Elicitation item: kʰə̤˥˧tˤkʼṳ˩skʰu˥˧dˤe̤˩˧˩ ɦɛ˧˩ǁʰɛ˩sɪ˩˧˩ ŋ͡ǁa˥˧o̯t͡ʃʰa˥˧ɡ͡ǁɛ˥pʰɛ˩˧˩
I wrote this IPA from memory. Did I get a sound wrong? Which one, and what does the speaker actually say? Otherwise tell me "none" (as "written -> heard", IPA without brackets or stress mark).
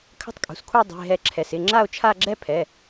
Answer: none